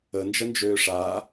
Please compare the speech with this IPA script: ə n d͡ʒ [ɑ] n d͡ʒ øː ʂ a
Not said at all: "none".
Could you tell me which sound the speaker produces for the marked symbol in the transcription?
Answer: ə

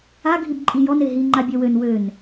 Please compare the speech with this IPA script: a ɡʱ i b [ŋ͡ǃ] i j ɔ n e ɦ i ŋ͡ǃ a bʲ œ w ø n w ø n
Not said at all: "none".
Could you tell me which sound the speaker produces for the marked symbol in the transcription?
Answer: ǃʼ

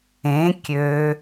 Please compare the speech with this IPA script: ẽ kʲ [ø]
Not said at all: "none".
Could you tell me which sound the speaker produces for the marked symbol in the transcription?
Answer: ø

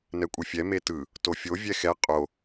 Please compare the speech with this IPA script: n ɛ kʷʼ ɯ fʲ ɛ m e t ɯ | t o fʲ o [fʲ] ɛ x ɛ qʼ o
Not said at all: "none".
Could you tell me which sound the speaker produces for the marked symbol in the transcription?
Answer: vʲ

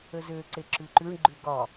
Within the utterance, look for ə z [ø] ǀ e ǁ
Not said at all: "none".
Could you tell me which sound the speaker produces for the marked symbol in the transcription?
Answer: ø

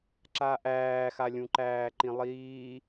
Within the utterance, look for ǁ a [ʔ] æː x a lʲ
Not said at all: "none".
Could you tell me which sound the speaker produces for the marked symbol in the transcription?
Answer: ʔ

